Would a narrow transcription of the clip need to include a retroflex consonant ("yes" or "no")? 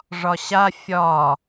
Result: yes